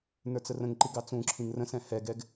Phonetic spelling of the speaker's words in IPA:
n ə˞ t͡s ə r ə̃ ŋ ǃ i ɡ ɑ t͡s ũ ǁʰ ĩ ŋ r ə̃ s ɛ̃ h ɛ ɡ ɛ ɡ

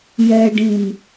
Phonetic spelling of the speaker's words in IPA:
j ɛ ɖ ĩ n

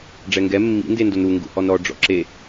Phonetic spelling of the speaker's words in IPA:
ɖ͡ʐ ɛ ŋ ɡ ɛ mː ḭ n d e n d o n ɾ u ŋ ɡ ṵ h ɔ n ɾ ɔ ɖ͡ʐ ɔ̰ ǁ e

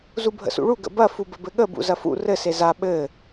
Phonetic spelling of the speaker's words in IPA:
z u bʱ ə̰ s ṵ ɭ u ɡ ə̰ b ɐ f u b ə b ɘ ɠ ə b ṵ z ɐ f ṵ r ɘ s e z a ɓ ɘ

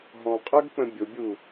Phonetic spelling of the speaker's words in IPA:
ɦ ɔ̃ qʼ ə˞ ɡ k͡p ə̃ bʲ ʊ bʲ u

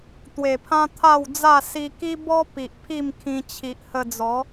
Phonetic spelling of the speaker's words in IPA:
t̪ w e˨˩ pʰ ã˦ t̪ʰ a˥˧ w d͡z a˥˧ s i˧ k i˦ b ɔ˦ p i˨ ʔ pʰ i˥˧ m kʰ ĩ˧ t͡ɕʰ i˨ ʔ h ə˧ d͡z ɔ˨˦

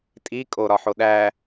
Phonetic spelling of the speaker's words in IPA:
tʼ i kʼ o ɾ ɒ ħ o ɗ æ

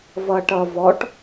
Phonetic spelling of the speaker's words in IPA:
v ʌ ʈ ʌ v ɔ ʈ

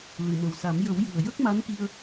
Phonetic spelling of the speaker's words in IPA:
l ɨ˨˩˨ m ə˨˩ w s a˨˩˦ m j ə˨˩˦ w j ɨ˨˩ ə̯ j ə˦˥ k̚ m a˧˥ n k i˧ ə̯

